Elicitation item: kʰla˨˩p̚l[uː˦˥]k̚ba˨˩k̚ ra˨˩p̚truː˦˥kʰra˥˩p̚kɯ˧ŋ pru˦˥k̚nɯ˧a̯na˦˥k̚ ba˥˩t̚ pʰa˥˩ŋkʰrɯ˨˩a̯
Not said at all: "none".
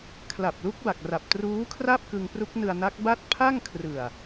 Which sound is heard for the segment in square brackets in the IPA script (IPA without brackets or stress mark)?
u˦˥